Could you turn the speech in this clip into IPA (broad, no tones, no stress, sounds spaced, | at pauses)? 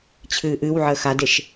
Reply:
t͡ɕʰ ɨː ʔ ɨ w ʕ əː x a d e ʃ